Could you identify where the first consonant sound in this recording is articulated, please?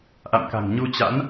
glottal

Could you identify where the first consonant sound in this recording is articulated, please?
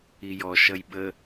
palatal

